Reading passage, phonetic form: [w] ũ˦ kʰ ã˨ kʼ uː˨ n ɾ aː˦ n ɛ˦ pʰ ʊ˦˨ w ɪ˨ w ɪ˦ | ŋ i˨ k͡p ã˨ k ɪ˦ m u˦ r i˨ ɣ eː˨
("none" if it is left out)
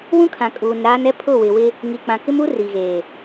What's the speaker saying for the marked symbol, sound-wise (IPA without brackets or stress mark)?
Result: w